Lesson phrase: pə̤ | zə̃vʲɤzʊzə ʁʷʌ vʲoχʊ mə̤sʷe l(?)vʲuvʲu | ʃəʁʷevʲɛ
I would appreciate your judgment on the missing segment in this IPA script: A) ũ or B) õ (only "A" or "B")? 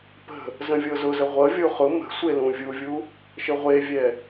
A